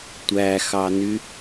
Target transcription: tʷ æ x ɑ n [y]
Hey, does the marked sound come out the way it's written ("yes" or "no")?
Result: yes